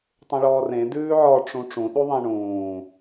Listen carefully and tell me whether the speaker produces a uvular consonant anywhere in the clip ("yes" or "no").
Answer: no